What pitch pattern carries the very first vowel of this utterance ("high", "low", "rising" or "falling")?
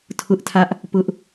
high